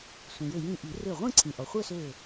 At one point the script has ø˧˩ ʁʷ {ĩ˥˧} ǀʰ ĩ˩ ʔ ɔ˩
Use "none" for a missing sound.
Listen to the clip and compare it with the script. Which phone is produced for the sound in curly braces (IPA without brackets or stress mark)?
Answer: ĩ˥˧